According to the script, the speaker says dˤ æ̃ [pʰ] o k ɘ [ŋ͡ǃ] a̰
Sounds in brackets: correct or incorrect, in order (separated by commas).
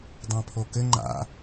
correct, correct